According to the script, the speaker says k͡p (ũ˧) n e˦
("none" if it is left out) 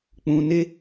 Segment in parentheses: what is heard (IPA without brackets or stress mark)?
ũ˧